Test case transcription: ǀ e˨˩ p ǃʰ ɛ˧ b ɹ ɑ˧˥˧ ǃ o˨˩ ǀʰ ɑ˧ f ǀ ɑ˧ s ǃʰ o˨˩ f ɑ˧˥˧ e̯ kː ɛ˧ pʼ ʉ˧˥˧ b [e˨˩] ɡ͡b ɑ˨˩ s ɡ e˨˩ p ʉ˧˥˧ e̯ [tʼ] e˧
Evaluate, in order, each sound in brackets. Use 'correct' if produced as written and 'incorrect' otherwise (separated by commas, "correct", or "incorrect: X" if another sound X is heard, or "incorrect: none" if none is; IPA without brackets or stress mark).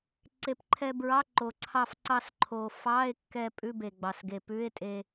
correct, correct